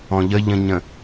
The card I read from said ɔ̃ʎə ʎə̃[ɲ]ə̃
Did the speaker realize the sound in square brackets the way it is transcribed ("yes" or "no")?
yes